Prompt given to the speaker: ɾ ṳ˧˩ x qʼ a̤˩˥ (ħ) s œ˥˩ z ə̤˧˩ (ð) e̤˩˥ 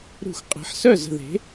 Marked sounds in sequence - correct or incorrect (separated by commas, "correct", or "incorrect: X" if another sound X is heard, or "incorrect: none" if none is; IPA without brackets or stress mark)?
correct, correct